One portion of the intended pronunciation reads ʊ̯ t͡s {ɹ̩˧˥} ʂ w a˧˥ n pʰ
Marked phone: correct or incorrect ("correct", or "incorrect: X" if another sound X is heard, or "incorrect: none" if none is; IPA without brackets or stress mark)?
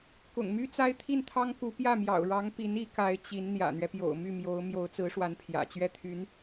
correct